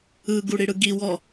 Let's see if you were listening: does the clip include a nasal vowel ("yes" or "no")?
no